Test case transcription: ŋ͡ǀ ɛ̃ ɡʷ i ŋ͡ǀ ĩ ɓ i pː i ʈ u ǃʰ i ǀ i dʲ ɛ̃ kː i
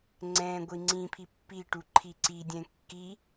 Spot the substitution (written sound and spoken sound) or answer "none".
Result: ɓ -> pʰ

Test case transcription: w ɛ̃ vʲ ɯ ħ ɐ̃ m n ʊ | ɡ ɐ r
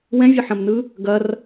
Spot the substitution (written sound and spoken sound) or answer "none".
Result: ʊ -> ɯ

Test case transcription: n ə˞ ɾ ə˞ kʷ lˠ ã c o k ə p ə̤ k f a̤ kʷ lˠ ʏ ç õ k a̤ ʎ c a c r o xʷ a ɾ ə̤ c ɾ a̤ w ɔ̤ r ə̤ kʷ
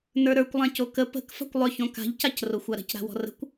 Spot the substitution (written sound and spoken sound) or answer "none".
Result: none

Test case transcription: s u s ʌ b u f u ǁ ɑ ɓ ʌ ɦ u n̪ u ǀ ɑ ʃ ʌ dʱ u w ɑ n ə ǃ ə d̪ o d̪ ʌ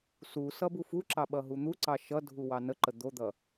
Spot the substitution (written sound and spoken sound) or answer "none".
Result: none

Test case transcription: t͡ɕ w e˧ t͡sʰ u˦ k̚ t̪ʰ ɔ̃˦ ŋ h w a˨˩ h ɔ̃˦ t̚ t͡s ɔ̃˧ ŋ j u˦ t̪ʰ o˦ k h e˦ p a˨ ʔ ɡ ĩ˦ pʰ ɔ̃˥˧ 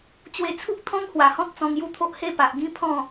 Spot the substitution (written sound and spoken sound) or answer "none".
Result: k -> ʔ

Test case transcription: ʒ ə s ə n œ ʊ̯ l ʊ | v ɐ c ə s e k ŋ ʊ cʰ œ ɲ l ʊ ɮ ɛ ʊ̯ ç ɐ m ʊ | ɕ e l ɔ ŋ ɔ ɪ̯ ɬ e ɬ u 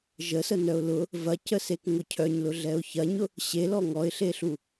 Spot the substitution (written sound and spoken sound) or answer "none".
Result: m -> ɲ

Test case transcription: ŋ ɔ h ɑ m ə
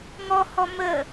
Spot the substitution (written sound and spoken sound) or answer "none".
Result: ɑ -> ɔ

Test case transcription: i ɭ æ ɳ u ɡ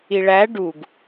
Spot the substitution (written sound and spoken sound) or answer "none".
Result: ɳ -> ɖ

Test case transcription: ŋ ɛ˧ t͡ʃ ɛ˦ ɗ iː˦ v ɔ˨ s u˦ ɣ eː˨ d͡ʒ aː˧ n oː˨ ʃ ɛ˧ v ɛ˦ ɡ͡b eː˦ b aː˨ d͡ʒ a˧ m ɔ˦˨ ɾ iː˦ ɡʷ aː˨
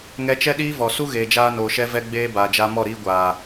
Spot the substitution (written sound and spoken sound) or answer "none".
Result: none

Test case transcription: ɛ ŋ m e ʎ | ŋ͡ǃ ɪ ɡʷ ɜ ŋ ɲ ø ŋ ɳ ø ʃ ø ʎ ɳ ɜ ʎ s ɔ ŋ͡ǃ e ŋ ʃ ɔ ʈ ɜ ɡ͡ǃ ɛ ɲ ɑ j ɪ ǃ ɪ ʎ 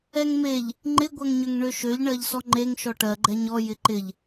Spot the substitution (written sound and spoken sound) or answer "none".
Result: ɑ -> ɔ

